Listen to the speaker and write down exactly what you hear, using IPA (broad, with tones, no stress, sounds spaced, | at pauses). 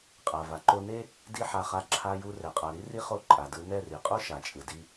qʼ a˨ v a˨ ǃ o˧ n e˦ | d i˦ ħ a˧ χ a˧ ǁʰ a˧ j u˧ r ɛ˨ qʼ a˨ ɾ i˦ r i˦ χ o˦˨ ǃʼ a˨ d ɯ˧ n ɛ˦˨ r i˨ qʼ o˦ ʃ a˨ t͡ʃʼ ɯ˨ d i˧